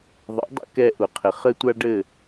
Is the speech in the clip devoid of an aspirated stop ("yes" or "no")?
no